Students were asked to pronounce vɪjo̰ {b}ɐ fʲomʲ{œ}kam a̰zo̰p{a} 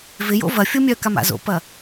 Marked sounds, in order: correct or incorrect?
incorrect, correct, incorrect

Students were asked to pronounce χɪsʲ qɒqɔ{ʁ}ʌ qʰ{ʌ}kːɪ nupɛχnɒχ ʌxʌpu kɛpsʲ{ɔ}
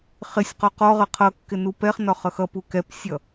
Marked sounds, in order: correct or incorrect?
correct, correct, incorrect

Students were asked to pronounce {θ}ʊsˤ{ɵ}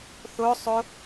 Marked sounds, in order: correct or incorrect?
correct, incorrect

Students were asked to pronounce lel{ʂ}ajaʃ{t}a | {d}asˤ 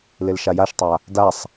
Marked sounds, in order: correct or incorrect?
incorrect, incorrect, correct

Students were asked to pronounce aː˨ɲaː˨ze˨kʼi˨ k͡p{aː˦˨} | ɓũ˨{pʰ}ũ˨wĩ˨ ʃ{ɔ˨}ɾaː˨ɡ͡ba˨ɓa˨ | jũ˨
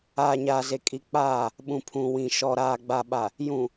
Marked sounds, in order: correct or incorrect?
correct, correct, correct

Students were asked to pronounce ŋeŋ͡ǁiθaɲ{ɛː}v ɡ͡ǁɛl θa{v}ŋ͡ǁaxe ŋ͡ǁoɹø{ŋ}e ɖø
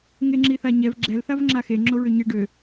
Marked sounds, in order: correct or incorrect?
incorrect, correct, incorrect

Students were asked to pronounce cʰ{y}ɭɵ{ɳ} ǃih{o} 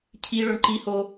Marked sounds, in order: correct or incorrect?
incorrect, correct, correct

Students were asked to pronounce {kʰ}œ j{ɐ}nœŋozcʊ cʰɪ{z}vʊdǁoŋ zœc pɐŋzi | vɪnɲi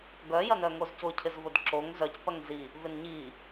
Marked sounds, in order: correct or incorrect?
incorrect, correct, correct

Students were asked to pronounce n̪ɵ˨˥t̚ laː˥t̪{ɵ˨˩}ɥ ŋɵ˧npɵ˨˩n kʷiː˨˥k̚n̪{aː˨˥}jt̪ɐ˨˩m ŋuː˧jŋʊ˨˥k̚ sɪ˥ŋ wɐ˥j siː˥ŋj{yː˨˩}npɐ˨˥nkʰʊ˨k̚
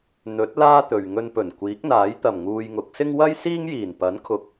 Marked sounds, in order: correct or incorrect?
incorrect, correct, incorrect

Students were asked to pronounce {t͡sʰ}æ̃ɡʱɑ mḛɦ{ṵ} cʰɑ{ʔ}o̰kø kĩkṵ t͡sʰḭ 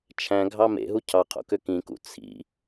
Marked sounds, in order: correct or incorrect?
incorrect, incorrect, incorrect

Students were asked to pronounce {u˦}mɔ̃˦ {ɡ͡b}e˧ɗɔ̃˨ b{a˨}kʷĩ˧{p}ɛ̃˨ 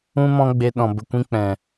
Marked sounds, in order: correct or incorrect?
incorrect, correct, incorrect, incorrect

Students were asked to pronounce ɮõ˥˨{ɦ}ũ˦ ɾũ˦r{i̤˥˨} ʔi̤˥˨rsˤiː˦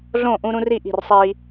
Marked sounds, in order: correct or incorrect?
incorrect, incorrect

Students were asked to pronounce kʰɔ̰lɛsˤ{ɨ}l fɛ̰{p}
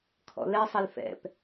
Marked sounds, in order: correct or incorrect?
incorrect, correct

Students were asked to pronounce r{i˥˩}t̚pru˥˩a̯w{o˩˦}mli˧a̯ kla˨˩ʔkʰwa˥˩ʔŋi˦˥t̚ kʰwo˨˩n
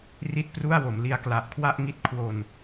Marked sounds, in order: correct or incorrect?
correct, correct

